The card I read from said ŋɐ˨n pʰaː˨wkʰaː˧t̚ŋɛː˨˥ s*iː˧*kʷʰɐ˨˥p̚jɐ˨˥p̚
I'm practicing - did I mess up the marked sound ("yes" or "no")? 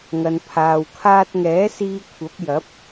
no